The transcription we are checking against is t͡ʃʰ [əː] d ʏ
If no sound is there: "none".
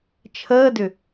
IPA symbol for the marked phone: əː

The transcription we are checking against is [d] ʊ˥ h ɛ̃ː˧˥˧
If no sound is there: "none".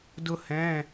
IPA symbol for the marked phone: d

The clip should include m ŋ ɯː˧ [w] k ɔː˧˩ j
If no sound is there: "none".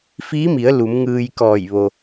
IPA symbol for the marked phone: j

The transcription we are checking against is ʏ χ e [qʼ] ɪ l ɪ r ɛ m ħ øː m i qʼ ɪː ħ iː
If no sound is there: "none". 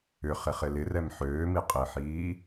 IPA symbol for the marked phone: χ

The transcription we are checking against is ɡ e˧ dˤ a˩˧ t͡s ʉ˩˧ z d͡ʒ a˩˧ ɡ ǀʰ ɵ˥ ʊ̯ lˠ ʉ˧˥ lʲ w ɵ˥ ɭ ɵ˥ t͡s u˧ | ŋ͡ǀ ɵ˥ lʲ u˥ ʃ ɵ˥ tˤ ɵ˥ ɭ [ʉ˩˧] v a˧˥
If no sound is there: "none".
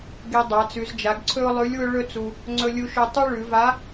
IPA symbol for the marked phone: ʉ˩˧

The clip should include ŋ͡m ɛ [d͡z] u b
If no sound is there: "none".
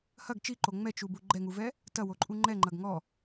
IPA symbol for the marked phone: t͡ʃ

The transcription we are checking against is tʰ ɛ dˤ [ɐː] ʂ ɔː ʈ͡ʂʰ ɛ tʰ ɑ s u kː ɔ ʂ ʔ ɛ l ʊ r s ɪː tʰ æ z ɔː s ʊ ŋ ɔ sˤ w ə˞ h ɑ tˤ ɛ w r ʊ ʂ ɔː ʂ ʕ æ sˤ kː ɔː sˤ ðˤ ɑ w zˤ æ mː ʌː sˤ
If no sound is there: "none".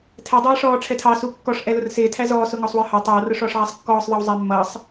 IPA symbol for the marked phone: æː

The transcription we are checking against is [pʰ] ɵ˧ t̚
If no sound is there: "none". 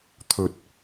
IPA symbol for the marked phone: t̪ʰ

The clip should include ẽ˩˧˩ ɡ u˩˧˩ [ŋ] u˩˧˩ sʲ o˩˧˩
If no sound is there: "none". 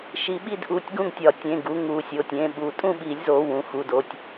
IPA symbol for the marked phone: ŋ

